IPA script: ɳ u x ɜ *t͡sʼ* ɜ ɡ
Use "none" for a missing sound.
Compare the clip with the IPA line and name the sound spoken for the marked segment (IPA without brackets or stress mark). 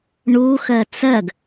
t͡s